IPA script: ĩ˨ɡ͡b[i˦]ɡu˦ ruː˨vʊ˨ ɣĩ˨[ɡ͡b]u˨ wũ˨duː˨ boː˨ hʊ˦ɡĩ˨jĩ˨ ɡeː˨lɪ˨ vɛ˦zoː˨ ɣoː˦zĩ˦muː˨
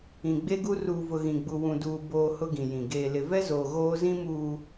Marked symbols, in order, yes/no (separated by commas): no, yes